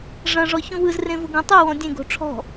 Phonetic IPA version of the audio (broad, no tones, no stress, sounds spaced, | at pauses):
ʐ ɐ̃ ʐ ɔ ç ũ w ɯ z r ẽ v ʊ ɡ ũ tˤ ɯ w ɔ̃ dʲ ẽ ɡ o̤ ʈ͡ʂʰ ɔ̤